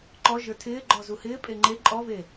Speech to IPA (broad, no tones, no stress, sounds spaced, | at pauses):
ǃ ɔ ʒ ə˞ tʰ ɪː ɡ͡ǃ ɔ z u h ɪː pʼ e ŋ͡ǃ e ǃʼ ɔ v e